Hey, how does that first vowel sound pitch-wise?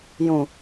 low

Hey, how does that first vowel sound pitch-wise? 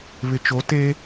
low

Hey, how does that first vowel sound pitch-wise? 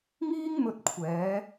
high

